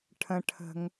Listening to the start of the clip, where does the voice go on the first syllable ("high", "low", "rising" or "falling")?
low